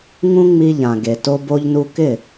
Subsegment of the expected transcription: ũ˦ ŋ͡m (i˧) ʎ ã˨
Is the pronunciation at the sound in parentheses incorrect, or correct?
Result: correct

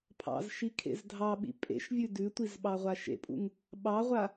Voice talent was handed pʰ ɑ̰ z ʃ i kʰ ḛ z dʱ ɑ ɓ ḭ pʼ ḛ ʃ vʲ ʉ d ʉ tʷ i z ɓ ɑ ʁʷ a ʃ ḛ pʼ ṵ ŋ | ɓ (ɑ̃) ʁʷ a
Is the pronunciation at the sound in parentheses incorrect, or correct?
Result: incorrect: ɑ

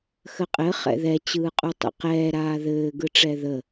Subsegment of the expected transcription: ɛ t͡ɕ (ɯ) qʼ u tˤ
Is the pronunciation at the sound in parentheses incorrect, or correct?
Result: incorrect: ɯː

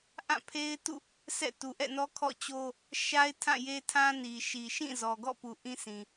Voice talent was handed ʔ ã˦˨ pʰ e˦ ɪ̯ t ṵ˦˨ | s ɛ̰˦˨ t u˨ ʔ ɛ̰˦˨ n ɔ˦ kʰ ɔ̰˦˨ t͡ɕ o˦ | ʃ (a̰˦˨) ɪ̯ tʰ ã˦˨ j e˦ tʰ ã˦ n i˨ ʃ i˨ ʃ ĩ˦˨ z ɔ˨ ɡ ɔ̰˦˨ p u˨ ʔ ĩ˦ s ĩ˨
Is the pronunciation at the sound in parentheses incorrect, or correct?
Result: incorrect: a˦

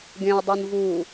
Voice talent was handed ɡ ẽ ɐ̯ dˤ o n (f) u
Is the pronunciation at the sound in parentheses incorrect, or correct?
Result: incorrect: v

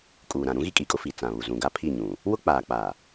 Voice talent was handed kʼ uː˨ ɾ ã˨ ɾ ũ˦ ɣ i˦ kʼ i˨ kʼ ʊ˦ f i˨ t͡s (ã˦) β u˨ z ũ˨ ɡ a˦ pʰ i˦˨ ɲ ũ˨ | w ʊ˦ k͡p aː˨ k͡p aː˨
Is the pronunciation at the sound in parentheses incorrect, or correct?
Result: incorrect: ã˨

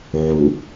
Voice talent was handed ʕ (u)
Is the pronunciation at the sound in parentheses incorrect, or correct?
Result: correct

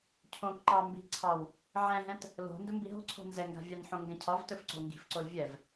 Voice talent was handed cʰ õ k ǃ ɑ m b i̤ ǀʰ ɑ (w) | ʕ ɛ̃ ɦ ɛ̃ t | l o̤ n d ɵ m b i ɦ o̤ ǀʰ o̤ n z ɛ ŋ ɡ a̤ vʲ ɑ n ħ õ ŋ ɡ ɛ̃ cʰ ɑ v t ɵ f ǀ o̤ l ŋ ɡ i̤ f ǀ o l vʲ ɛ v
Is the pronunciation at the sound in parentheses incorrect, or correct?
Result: correct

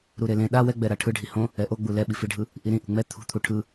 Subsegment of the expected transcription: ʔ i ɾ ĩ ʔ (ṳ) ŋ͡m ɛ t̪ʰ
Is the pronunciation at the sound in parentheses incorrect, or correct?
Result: correct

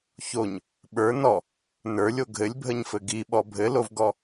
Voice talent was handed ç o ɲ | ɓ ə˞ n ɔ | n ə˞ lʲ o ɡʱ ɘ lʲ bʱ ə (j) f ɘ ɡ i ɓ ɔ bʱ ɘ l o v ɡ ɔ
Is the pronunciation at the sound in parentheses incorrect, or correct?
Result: incorrect: ɲ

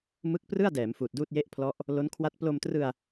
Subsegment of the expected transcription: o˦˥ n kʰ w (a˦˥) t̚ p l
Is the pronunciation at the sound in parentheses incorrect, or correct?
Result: correct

